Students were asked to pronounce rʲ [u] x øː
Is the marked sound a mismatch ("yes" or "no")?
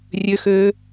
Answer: yes